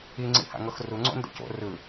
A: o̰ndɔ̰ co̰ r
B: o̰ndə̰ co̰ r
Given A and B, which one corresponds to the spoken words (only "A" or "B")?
B